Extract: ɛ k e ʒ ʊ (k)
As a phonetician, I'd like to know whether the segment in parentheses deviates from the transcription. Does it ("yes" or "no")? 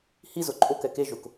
no